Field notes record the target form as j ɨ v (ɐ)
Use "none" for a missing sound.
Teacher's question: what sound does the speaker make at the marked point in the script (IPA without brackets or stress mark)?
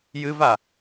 a